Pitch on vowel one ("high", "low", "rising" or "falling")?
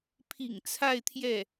low